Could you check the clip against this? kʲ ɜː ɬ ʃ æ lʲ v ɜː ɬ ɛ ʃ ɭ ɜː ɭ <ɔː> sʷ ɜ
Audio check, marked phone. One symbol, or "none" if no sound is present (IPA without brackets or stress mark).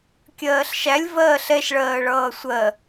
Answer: ʌː